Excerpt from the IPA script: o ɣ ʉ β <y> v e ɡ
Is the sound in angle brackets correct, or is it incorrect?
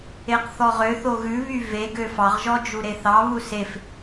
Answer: correct